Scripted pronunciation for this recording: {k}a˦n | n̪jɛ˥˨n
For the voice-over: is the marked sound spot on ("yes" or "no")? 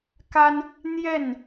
yes